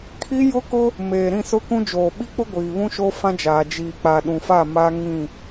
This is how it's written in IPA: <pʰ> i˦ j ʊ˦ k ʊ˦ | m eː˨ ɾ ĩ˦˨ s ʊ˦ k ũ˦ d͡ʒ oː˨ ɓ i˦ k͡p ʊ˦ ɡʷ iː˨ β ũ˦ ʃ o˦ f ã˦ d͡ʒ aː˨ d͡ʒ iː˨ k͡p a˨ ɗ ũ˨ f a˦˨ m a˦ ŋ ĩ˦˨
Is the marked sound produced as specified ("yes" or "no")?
no